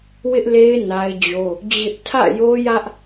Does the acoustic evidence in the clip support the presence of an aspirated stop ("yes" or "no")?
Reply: yes